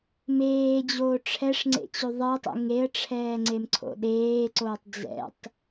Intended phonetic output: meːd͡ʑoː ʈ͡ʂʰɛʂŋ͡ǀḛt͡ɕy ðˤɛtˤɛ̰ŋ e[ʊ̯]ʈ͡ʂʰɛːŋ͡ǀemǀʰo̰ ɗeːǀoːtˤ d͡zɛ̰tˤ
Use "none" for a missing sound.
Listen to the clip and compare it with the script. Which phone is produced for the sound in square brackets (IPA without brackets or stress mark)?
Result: ə̯